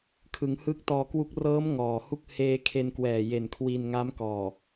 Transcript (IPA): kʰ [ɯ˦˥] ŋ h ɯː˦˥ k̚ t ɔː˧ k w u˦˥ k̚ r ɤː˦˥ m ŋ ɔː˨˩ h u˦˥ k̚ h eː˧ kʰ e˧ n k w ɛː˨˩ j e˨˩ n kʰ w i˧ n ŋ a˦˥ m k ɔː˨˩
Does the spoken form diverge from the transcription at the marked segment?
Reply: yes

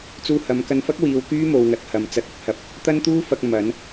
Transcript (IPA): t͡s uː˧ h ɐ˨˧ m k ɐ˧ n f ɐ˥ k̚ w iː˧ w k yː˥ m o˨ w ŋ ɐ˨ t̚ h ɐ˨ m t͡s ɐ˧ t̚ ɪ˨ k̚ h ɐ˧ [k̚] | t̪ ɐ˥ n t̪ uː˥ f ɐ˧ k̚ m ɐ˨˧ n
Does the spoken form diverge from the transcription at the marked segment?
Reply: yes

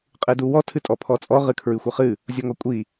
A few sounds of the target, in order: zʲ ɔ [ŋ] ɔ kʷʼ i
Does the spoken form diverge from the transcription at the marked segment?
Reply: no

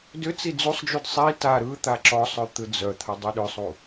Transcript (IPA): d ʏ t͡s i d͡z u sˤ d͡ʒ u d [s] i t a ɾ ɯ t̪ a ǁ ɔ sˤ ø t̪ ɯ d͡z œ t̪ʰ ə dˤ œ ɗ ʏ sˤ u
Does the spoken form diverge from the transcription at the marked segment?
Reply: yes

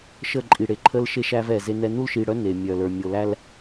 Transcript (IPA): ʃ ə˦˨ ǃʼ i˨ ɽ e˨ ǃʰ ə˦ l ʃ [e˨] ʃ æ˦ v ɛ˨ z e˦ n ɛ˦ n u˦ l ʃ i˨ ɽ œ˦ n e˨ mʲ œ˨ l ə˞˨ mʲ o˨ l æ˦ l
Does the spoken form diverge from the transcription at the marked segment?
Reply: yes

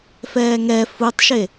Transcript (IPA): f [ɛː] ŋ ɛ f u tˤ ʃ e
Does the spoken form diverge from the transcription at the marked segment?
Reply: no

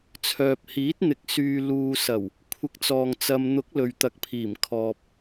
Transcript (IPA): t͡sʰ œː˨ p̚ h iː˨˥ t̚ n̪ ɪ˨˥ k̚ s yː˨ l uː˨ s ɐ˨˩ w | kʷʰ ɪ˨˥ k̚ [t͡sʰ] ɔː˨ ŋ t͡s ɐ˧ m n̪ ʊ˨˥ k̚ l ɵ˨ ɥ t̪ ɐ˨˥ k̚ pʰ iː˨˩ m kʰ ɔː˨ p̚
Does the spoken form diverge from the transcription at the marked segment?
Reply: yes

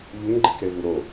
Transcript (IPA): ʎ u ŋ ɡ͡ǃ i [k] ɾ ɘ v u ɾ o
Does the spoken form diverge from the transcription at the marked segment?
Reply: no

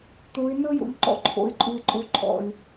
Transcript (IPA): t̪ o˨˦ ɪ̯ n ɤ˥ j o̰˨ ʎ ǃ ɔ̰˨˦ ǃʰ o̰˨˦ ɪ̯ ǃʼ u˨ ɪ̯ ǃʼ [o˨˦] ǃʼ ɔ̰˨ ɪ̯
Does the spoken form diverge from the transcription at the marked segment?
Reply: no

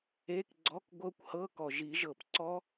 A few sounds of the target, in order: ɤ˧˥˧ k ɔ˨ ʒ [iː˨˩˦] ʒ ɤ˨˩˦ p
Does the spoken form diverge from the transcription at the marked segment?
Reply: yes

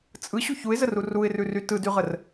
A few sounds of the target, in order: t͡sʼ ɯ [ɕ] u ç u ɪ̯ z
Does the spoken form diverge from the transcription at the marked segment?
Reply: no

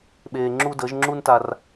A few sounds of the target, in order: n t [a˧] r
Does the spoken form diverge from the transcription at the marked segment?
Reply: no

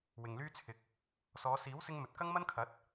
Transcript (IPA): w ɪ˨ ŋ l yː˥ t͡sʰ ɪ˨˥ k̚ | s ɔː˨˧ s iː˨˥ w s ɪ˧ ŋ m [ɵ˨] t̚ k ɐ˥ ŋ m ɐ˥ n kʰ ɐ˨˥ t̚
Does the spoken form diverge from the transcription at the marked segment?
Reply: no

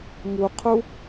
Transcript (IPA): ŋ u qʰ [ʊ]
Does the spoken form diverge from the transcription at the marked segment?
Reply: yes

